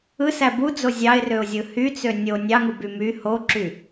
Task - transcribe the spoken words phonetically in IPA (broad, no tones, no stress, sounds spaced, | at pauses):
ɯ s æ b u d͡z o zʲ ɑ ɪ̯ r ø ʊ̯ zʲ ɯ h y t͡s ø nʲ o nʲ ɑ ŋ u b y m y h o ǁ y